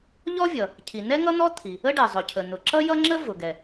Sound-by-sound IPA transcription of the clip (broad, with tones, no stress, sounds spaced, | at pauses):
ʎ ɔ˥ vʲ ʌ˩ | cʰ i˩ n ɛ˥ ŋ ʌ˥ n̪ ɔ˥ t̪ʰ i˩ | ə˥ ɖ ɛ˩ zˤ ʊ˩ cʰ ə˩ n̪ ʊ˩ ǁ ʌ˥ j ʌ˥ ŋ͡ǁ ə˥ v ʊ˩ ɡ ɛ˩